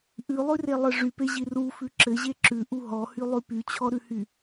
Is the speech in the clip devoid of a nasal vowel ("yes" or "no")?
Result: yes